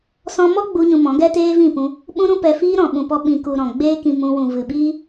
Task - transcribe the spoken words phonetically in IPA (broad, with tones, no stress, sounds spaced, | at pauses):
s ɔ̃˧ m ɔ˦ ɡ͡b u˦ ɲ ũ˧ m ɔ̃˨˦ ɡ ɛ˦ t eː˦ v ĩ˦˨ p ũ˧ | ɓ ũ˦ ɾ ũ˦ p ɛ˧ f iː˦ ɾ ɔ̃˨ ɓ ũ˨ p ɔ˧ ɓ ĩ˨ k u˨ ɾ ɔ̃˨ ɡ͡b eː˦ k ĩ˧ m ũ˧ w ũ˨ v ɨ˨ ɓ iː˦